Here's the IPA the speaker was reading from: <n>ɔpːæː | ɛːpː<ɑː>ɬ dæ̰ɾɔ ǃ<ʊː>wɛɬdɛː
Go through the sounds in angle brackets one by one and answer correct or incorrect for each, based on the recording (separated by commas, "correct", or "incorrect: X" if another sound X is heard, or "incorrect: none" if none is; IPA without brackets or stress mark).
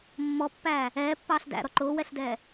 incorrect: mː, correct, correct